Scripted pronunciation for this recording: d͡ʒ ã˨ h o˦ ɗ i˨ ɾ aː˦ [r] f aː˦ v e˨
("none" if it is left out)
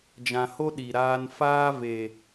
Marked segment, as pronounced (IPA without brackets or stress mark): n